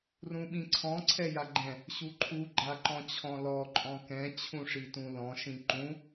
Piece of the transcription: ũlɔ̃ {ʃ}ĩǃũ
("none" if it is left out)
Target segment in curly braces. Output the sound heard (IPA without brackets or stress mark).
ʃ